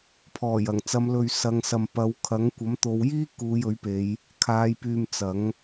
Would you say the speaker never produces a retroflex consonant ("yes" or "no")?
yes